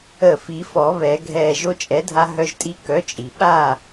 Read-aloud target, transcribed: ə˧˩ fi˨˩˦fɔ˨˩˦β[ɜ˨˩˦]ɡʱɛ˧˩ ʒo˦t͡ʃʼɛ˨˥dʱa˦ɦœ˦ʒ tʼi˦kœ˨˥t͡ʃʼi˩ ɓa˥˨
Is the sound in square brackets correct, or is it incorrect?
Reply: incorrect